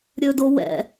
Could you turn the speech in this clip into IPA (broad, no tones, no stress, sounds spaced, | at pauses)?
ɾʲ ɵ d o w ɛ̰